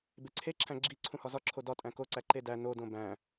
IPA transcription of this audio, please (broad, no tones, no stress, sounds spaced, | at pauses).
b e ǀʰ e ǁʰ æ̃ ɡ͡ǁ i ǀʰ ũ h ɒ z ɒ ǁʰ o d ɒ tʼ æ̃ k o ǀ æ ǃ e d æ n o d õ b æ̃